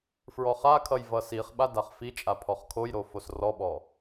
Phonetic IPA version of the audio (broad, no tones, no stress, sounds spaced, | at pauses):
f ɹ ɔ χ a kʰ ʌ j v ʌ s i χ ɓ a d a χ f i t͡ʃʼ a pʰ ɔ χ kʰ o j ɾ o f o s r ɔ ɓ ɔ